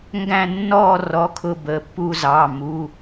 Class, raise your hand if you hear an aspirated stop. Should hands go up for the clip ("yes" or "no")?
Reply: yes